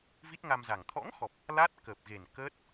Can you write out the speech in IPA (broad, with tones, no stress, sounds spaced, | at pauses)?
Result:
v i˦˥ t̚ ŋ a˧ m z a˨˩ ŋ t̪ʰ ɔ̰˧˥ ŋ x ɔ˨˩ p̚ | l a˦˥ t̚ k əː˨˩ p̚ ɣ e˨˩ n k əː˦˥ t̚